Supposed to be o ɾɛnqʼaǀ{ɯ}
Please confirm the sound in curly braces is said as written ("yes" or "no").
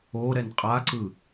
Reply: yes